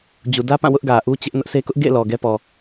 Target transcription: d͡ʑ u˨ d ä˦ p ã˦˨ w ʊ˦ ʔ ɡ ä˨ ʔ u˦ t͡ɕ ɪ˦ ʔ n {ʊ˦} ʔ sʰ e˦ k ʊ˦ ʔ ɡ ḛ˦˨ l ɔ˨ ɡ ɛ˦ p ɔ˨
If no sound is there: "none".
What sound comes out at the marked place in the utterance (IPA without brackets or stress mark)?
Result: ʊ˦